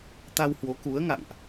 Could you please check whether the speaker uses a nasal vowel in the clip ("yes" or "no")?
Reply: no